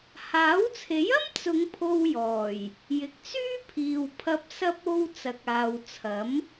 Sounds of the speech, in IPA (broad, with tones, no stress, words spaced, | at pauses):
haː˨˥wt͡sʰe˨˥jɐ˥m t͡sʊ˨˧ŋ pʰo˧w jɔː˨˩j | jɪ˨k̚t͡syː˥pʰiː˨wpʰɐ˧p̚ sɐ˧p̚o˧w t͡sɐ˨k̚aː˨wt͡sʰɐ˨˥m